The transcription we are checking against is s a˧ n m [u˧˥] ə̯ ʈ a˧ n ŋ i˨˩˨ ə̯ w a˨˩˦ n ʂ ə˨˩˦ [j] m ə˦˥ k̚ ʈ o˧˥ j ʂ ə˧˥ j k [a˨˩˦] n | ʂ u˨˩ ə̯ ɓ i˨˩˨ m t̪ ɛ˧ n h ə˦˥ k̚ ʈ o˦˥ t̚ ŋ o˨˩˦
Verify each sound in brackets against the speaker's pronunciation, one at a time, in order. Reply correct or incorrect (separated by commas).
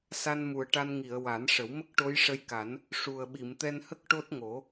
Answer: incorrect, incorrect, correct